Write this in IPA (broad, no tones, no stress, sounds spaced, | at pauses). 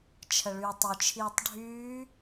t͡ʃʰ ə ɭ yː tˤ ʊ t͡ʃʰ iː tˤ ɖʱ yː